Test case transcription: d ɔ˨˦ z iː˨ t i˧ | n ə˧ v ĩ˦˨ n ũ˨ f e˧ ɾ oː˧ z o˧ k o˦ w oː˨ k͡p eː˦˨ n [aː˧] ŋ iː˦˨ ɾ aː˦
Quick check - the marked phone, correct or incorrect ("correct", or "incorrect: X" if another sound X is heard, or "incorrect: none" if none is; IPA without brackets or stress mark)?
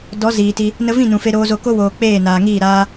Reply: incorrect: aː˨